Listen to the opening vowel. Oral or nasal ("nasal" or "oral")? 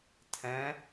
nasal